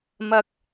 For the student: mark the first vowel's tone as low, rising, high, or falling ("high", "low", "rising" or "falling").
high